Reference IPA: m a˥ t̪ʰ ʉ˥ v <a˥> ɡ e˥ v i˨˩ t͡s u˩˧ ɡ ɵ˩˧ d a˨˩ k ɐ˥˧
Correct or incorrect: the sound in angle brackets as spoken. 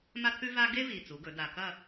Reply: correct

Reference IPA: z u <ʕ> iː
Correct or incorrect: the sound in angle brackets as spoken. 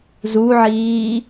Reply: correct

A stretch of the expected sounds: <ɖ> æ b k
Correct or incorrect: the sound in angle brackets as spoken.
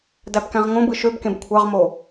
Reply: incorrect: d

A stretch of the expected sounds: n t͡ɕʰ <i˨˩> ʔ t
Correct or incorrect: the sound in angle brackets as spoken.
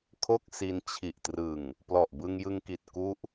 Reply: correct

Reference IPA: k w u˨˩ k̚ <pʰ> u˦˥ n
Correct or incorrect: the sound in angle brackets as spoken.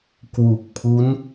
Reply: correct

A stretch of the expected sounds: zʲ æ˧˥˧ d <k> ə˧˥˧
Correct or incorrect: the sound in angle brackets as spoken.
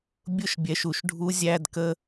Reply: correct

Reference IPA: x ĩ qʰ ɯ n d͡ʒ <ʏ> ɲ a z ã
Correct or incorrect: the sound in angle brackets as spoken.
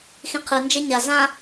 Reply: incorrect: ɛ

